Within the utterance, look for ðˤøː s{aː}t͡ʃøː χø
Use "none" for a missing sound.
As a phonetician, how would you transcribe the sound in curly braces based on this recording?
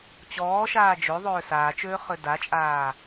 aː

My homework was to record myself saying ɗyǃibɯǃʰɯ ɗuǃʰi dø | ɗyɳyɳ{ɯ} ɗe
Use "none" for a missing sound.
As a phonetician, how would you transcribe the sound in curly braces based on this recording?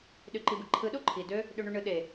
ɯ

